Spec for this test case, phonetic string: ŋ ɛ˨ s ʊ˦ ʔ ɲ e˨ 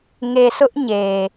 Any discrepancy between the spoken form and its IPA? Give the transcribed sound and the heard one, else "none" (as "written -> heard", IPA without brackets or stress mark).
ɛ˨ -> e˨